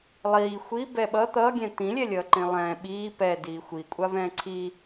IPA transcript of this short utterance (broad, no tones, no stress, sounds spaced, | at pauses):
lˠ iː xʷ i b ɛ ɓ ʌ t̪ ʌː ɡʲ ɛ̃ t̪ ĩ lʲ ɛ lʲ ʌː ǃ ĩ lˠ ɛ̃ː ɓ iː p ɛ d iː xʷ i kʷʼ a v ɛ̃ː ǀʰ i